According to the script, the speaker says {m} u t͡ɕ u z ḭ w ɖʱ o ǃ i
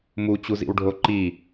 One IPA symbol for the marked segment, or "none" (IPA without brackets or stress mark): m